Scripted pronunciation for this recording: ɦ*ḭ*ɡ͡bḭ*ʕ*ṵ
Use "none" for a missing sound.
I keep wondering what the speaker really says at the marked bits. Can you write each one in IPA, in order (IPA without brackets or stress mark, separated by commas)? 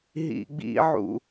ḭ, ʕ